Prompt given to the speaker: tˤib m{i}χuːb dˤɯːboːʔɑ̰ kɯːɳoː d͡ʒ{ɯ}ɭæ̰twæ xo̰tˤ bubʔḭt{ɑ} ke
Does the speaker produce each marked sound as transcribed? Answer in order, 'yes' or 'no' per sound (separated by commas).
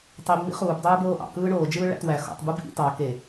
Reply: no, no, yes